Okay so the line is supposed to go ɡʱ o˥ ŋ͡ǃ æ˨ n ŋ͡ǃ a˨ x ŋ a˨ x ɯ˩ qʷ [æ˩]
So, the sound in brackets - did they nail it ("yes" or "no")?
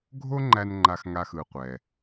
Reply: no